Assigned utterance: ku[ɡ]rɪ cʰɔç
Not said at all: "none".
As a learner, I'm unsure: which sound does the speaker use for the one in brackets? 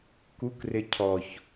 k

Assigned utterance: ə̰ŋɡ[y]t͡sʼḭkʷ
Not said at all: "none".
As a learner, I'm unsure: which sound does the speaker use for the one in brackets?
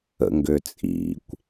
ø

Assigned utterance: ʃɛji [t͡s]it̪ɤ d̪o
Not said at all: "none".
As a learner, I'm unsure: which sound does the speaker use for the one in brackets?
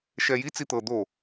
t͡s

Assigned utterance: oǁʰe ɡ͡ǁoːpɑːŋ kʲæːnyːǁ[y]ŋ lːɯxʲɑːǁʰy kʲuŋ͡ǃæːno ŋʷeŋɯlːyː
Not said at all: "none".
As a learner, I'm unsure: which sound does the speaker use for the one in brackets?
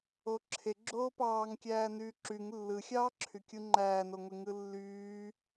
y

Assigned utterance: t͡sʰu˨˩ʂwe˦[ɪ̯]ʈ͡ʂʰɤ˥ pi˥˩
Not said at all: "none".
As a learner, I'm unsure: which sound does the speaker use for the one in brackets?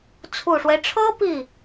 ɪ̯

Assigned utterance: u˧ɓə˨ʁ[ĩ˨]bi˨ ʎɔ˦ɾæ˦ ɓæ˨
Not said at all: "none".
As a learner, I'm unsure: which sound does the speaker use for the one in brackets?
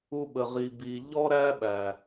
i˨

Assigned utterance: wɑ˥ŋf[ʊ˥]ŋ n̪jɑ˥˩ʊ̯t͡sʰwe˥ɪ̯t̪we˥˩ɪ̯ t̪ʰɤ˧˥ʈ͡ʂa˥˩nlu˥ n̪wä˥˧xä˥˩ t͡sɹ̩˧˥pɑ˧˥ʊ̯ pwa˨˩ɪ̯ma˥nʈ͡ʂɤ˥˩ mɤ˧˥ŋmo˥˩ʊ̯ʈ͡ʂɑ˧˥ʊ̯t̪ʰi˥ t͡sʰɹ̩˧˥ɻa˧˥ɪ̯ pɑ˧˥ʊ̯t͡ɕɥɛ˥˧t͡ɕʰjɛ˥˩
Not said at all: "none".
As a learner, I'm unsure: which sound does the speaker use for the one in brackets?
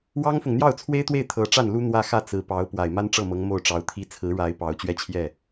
ʊ˨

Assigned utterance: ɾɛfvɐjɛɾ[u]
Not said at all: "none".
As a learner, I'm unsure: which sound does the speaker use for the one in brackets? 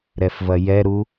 u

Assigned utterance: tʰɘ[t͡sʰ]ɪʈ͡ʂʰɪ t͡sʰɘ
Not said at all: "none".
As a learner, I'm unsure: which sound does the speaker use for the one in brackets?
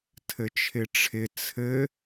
t͡ʃʰ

